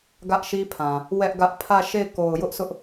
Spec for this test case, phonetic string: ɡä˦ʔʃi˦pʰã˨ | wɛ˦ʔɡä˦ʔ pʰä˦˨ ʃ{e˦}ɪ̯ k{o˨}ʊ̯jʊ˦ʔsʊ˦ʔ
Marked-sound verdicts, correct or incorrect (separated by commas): incorrect, correct